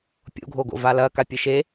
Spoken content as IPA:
pʲ o̰ ɡʱ o ɡ o̰ v a l ɐ k a pʲ ɨ ʃ e

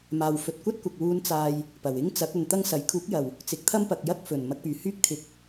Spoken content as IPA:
m aː˨ w f ɵ˨ t̚ kʷ ɐ˥ t̚ kʷ ɐ˨ k̚ w uː˧ n t͡s aː˨ j | p ɐ˨˩ w ɪ˥ ŋ t͡s ɐ˨˥ k̚ ɵ˨ n t̪ ɐ˥ ŋ s ɐ˨˥ j kʰ uː˨˥ k̚ j ɐ˨˩ w | t͡s ɪ˨˥ k̚ t̪ʰ ɐ˥ m p ɐ˨ k̚ j ɐ˥ k̚ f ɵ˨˩ n m ɐ˧ k̚ p yː˨˩ h yː˥ k̚ t̪ʰ ɪ˨˥ k̚

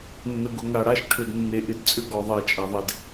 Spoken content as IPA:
nː ə˨ ɡ ʊ˨ ŋ a˨ ɽ a˦ ʃ ʈʰ ʏ˨ d nː e˨ ʔ ɪ˦ d t͡sʼ ʏ˦ ɡ ɔ˨ ðˤ e˨ t͡ʃʼ a˨ ðˤ e˨ d

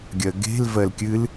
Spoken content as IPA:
ɡʲ ɜ ɡ e̤ l v ɜ l kʲ ɨ l

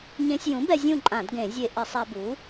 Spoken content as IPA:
ɲ ẽ˧ sʲ j ũ˩˥ b ɛ˧ zʲ ũ˥˨ ǃʼ ã˧˩˧ d ɡ ẽ˧˩˧ zʲ e˧ ʔ ɪ˧˩˧ sˤ a˧ b u˩˥

